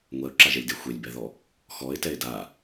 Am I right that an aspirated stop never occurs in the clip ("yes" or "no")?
yes